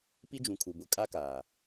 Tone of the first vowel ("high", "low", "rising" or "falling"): high